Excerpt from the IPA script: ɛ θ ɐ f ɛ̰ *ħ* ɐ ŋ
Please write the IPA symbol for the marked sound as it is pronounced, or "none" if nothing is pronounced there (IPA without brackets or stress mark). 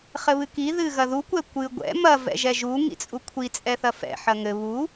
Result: ħ